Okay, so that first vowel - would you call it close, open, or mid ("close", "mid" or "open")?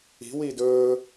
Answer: close